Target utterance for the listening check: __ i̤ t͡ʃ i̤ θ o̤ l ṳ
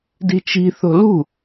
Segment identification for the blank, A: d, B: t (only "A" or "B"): A